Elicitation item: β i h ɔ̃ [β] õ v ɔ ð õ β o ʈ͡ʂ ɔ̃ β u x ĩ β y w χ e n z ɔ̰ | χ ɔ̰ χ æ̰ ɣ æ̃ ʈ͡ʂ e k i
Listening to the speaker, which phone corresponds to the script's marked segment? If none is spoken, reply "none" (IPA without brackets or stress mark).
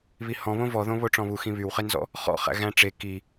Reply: β